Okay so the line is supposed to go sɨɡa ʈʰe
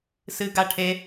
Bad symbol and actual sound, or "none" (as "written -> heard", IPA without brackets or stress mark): none